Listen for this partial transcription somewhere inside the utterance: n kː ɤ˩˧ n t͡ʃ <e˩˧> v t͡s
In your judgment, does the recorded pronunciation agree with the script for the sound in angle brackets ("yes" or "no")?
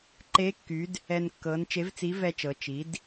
no